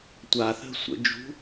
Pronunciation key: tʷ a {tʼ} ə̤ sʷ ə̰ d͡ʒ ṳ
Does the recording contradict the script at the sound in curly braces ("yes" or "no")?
yes